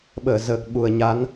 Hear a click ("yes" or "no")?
no